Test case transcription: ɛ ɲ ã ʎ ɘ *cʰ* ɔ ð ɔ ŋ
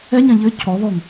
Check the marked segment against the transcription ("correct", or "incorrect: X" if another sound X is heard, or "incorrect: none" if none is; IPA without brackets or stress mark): correct